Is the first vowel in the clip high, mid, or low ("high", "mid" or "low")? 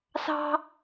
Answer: low